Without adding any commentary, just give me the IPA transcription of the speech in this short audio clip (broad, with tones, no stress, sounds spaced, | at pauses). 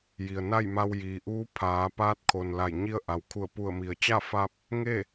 j i˩ ə̯ n a˥˨ j m a˧ w j iː˩ ʔ uː˧˥ pʰ aː˩˧ p aː˧˥ t̚ kʰ o˩ n l a˧˩ j ɲ i˧ ə̯ ʔ a˩ w kʰ u˧˩ ə̯ p u˧˩ ə̯ m i˩ ə̯ t͡ɕ a˥˨ f a˧ p̚ | ŋ e˥˨